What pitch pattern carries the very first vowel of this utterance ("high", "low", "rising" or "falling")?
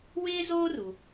high